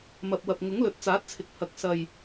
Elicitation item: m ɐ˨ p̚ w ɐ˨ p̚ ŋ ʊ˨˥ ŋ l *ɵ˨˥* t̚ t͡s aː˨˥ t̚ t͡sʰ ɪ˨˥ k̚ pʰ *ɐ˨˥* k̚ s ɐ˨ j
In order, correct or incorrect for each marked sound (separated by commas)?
correct, incorrect